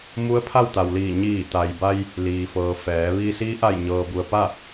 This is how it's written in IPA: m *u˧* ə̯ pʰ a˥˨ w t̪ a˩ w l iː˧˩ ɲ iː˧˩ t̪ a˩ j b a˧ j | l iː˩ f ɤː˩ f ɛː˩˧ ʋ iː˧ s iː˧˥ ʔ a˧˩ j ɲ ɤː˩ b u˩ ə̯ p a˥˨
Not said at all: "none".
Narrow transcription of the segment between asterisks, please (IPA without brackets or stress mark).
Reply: u˧˥